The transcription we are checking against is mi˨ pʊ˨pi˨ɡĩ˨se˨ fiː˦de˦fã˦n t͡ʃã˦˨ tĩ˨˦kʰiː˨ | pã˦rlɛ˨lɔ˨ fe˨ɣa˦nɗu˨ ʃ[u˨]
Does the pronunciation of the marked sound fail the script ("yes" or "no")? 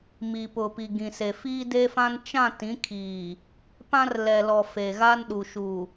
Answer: no